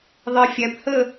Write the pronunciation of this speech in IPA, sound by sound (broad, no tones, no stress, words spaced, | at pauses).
ðˤifʲæphə